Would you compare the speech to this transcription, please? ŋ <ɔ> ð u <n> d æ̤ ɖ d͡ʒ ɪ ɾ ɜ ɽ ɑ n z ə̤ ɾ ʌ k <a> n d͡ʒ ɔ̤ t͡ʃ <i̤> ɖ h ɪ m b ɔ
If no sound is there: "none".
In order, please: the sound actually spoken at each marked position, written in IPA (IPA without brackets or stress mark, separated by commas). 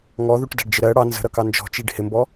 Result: ɔ, ʈ, ɑ, i